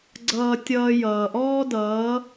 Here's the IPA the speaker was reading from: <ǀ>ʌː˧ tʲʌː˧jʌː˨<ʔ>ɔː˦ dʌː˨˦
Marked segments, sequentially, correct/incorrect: incorrect: ɡ͡ǀ, correct

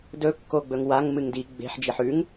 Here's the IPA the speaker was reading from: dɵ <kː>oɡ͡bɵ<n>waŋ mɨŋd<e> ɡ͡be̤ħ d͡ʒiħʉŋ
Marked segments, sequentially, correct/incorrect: correct, incorrect: ŋ, incorrect: i

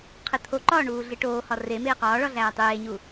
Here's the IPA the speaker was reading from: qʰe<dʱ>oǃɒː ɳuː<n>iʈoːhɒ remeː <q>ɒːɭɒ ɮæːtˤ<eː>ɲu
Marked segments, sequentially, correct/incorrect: incorrect: t̪ʰ, incorrect: ɮ, correct, correct

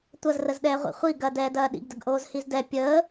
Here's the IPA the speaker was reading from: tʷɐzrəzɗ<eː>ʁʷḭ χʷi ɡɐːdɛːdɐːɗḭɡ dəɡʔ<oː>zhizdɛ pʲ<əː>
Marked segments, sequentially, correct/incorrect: incorrect: ɛː, correct, correct

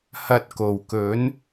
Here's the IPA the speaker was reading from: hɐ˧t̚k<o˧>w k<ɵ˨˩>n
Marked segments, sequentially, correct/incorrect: incorrect: o˨˩, incorrect: ɵ˨˥

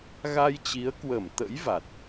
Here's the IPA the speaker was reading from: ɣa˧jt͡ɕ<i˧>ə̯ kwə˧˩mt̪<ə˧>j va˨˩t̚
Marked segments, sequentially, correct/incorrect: incorrect: i˨˦, incorrect: ə̰˧˥

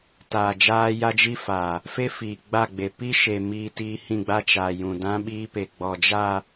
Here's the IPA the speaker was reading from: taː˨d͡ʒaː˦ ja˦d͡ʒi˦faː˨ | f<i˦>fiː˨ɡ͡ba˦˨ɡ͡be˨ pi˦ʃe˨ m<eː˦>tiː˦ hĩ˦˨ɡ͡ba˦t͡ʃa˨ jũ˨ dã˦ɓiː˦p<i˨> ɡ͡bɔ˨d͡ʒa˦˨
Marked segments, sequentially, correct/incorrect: incorrect: e˦, incorrect: iː˦, incorrect: e˨

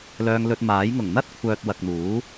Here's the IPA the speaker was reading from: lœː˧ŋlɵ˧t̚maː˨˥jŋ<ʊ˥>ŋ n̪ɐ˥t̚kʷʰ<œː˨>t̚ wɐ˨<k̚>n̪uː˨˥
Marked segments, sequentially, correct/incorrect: incorrect: ʊ˨˩, correct, correct

